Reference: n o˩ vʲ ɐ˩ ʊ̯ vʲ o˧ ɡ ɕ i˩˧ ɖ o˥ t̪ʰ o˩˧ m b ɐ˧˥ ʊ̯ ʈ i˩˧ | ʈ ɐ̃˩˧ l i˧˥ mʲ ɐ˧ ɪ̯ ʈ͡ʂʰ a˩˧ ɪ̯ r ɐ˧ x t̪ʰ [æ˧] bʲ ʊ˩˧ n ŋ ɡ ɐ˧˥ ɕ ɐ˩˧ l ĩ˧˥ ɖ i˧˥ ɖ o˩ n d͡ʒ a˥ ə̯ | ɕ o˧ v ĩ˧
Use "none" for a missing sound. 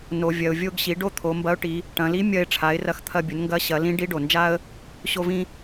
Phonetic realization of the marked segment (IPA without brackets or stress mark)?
ɐ˧